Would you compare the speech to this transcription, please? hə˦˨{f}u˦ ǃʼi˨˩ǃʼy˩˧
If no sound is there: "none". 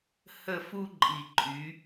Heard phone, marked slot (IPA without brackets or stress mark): f